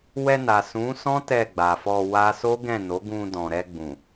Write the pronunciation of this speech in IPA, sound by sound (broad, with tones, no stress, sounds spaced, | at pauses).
w ɛ˧ n a˨ s ũ˨˦ s ɔ̃˦ t ɛ˦˨ ɡ͡b a˨ f ɔ˧ w a˦ s o˦ ɡ ɛ̃˦˨ n o˨˦ ɡ ũ˧ d ɔ̃˨ ɾ ɛ˧ ɡ͡b ũ˨